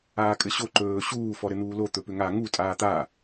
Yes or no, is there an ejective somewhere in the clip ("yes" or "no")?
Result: yes